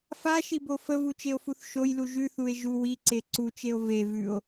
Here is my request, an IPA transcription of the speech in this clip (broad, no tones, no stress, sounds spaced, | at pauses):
f a ʃ i b o f ə v u t͡ʃ e o̯ f u θ ʃ o j l u ʒ ʉ θ u e̯ ʒ u w i ǀ e ǀ u t͡ʃ e o̯ v e v ʉ o̯